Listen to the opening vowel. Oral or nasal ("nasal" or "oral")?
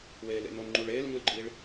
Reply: oral